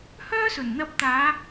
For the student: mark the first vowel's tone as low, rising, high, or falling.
high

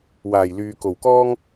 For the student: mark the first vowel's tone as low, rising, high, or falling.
low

